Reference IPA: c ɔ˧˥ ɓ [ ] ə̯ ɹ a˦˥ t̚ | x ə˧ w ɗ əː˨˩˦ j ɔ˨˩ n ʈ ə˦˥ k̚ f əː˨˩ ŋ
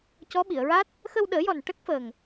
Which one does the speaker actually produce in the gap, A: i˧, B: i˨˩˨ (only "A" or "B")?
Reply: B